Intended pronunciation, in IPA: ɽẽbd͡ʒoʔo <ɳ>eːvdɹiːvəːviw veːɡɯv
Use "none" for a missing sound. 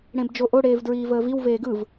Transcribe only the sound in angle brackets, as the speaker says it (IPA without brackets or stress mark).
ɽ